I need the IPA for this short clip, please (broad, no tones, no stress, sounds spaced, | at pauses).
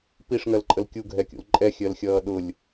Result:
p i ʂ ŋ ɜ l ǃʼ ə l kʲ u ɡʱ ɛ kʲ ṵ l ǃʼ ɛ xʲ ɜ l xʲ ʌː ɗ ʊ lʲ